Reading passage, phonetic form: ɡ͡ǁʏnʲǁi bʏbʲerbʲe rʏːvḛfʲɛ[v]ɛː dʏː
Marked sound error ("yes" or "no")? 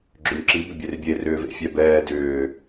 yes